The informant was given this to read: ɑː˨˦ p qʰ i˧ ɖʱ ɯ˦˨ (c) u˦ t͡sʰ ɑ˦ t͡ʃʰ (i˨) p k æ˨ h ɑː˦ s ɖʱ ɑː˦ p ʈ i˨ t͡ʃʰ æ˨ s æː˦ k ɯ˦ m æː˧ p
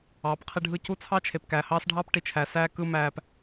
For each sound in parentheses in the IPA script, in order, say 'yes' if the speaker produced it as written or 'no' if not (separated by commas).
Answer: yes, no